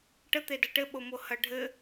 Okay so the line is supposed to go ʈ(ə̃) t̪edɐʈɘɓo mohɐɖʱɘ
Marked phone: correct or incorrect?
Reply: incorrect